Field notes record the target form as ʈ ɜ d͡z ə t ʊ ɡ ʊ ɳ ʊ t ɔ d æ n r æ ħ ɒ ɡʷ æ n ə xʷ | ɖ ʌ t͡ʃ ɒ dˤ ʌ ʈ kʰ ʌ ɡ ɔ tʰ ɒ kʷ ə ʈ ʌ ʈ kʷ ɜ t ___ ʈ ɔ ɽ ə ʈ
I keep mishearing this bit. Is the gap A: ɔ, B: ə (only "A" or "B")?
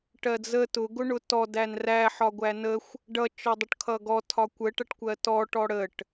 A